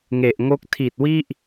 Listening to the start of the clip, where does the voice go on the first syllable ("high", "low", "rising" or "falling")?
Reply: low